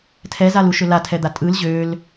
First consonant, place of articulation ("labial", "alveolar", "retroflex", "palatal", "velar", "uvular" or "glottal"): alveolar